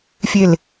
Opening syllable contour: low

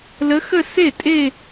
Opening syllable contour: rising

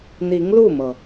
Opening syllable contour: rising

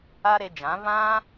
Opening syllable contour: high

